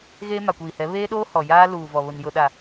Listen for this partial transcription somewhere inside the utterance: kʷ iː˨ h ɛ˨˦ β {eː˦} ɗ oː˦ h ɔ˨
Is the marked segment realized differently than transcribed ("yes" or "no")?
no